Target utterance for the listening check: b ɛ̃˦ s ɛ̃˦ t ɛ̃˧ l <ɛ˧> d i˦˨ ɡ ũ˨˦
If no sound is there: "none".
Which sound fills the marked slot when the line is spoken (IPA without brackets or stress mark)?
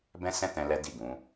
ɛ˦